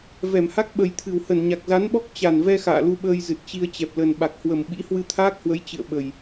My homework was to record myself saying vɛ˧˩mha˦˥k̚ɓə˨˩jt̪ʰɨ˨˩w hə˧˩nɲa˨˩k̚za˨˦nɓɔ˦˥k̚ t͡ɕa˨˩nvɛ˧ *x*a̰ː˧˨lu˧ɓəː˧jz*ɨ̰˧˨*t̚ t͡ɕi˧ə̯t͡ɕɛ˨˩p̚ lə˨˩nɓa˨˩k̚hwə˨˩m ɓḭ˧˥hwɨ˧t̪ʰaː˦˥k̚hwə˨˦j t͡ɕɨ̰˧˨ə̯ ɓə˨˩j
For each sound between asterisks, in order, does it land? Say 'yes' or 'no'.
yes, no

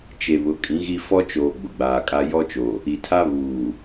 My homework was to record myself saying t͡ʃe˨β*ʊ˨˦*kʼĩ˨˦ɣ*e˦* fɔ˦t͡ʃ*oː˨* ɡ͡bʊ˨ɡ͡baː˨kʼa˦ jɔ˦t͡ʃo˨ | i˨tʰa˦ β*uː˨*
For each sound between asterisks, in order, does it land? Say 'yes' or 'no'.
yes, no, yes, yes

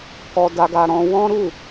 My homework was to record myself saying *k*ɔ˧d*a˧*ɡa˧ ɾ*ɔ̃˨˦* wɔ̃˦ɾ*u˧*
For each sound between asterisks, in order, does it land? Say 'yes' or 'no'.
yes, yes, no, no

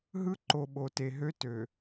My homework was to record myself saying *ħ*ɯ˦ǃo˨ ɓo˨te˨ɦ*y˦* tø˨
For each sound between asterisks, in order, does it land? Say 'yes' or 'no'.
no, no

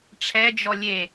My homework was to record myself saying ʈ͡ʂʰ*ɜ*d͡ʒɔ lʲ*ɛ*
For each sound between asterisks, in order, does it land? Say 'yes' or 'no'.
no, no

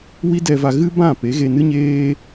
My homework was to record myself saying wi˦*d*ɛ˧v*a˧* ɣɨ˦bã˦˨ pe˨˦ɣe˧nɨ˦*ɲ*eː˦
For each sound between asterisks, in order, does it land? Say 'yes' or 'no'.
yes, yes, yes

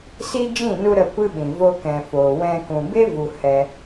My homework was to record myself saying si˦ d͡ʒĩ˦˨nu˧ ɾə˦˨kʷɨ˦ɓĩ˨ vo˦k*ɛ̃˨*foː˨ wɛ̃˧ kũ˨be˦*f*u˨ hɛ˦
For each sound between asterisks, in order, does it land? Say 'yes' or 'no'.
yes, no

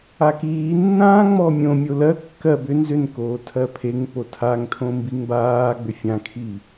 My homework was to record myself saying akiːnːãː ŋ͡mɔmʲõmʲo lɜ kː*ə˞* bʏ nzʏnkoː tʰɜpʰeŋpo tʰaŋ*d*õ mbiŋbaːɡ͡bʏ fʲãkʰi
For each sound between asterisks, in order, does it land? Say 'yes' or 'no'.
no, no

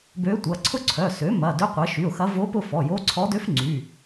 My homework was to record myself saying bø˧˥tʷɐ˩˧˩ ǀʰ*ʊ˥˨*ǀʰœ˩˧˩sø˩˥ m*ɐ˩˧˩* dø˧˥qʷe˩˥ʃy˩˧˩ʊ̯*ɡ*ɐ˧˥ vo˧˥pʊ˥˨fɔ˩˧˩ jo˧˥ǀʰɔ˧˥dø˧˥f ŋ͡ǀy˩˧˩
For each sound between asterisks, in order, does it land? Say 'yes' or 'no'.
yes, yes, no

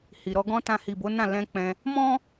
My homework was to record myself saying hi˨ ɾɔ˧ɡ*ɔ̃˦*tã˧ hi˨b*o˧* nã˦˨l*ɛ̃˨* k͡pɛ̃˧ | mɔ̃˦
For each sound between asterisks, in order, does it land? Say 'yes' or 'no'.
yes, no, no

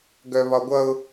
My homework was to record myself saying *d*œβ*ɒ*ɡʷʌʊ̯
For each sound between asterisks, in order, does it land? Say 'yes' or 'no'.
no, yes

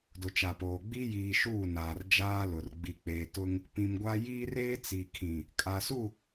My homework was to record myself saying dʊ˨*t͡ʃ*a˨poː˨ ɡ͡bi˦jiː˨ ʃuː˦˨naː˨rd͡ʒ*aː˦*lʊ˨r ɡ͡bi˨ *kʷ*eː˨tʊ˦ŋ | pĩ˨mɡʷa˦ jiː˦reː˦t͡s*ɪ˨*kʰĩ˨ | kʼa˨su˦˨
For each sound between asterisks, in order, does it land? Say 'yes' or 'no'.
yes, yes, no, no

